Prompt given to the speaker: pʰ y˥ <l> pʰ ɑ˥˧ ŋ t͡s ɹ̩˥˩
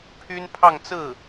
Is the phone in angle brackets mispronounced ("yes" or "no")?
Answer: yes